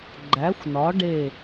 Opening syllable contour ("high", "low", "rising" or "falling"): rising